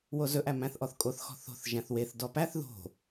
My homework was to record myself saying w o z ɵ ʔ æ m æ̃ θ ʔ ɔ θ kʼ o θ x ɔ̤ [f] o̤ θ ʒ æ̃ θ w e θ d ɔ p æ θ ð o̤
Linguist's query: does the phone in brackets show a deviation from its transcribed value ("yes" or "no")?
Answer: yes